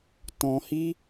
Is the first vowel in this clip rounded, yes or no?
yes